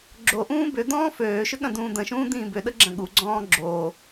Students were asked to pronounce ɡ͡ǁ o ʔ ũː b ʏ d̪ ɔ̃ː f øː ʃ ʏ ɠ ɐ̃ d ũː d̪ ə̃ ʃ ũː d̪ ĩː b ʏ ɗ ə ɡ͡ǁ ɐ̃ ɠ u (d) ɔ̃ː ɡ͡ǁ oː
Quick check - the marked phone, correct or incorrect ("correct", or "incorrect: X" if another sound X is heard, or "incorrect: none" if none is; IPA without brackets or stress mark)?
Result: incorrect: ɡ͡ǀ